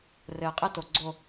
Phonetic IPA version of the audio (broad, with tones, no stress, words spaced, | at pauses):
rɘː˨ qʼe˦to˨ ɡ͡ǀo˨